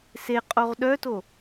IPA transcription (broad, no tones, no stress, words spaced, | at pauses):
se qʼoʁɗœto